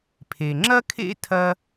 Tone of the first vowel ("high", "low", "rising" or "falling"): low